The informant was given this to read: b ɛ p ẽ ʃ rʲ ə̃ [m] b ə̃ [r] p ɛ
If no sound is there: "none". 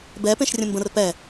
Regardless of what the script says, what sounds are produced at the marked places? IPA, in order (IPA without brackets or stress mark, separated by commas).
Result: m, r